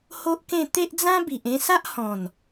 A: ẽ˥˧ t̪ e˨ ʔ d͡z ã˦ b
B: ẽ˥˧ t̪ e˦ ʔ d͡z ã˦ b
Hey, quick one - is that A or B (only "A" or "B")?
B